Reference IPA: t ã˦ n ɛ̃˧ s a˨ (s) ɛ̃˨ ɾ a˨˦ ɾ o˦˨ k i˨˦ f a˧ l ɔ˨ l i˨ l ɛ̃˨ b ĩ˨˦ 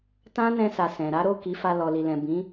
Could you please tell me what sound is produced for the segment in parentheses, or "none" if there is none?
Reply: s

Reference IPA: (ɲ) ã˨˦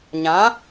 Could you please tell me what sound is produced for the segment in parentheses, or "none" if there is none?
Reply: ɲ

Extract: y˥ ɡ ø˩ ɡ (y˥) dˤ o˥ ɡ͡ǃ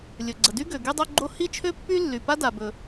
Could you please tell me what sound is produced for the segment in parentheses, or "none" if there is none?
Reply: y˥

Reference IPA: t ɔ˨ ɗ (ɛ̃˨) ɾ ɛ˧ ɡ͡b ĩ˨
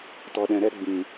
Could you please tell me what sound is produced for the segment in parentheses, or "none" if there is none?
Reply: ɛ̃˨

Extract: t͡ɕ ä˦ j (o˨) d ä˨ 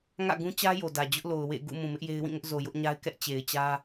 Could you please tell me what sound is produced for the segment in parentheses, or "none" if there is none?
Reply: o˨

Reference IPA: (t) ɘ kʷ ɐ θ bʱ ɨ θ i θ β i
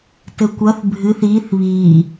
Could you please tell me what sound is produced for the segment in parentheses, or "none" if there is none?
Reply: t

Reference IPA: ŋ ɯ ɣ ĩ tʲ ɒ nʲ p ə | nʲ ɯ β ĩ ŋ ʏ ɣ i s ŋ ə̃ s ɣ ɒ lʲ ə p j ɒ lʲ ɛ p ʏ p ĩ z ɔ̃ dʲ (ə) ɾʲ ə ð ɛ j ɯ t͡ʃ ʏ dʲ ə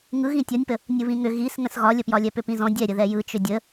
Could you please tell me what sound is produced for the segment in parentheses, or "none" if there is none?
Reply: ɛ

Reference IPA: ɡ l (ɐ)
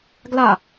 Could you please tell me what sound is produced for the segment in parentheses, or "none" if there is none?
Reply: a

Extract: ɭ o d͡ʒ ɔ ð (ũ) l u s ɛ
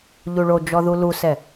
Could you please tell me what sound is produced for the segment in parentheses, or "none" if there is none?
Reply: u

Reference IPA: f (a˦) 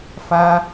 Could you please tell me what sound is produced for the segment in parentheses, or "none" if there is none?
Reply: a˦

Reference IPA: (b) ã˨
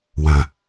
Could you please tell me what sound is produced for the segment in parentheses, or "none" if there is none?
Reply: w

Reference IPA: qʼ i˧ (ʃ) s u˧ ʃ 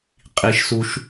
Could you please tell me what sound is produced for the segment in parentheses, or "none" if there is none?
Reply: ʃ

